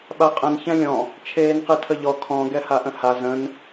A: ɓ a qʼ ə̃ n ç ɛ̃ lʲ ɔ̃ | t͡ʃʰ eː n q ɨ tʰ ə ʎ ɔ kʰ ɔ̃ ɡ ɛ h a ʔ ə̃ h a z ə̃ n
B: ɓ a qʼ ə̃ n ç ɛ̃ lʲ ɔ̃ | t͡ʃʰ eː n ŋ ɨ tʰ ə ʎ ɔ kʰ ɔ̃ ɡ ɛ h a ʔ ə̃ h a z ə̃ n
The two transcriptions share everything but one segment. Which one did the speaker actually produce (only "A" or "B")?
A